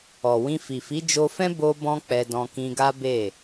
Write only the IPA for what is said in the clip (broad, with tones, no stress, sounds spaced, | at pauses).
ɔ˨ w ĩ˧ f i˨ f i˨˦ d͡ʒ o˧ f ɛ̃˦ b o˦ b ɔ̃˦ k͡p ɛ˧ d ɔ̃˧ k ĩ˧ ɡ a˦ b e˦˨